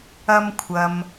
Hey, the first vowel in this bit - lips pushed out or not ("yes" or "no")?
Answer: no